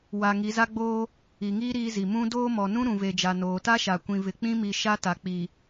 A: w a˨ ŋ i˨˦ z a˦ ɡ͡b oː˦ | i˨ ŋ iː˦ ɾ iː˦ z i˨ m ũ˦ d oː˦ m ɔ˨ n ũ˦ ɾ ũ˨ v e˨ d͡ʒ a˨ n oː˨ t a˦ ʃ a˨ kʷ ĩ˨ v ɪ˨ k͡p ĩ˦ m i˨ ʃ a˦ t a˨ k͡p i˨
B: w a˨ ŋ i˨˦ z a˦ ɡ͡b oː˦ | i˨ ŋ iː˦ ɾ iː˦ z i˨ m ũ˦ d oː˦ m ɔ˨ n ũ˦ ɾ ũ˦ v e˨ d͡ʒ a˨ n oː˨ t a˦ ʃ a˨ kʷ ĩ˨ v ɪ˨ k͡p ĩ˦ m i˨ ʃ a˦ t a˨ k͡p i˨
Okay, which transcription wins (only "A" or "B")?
A